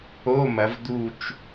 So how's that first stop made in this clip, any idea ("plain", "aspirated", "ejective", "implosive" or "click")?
plain